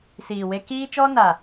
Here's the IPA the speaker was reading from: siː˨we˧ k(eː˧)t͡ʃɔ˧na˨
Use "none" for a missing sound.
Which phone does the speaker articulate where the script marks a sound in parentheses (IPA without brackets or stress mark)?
iː˧